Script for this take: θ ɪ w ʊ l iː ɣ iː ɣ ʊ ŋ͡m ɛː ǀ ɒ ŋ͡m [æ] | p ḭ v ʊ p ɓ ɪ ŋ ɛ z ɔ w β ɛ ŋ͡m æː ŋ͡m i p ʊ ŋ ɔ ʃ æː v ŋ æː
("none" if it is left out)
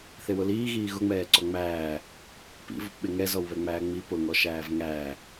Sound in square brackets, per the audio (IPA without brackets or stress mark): æː